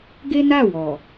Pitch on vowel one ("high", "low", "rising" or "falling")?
high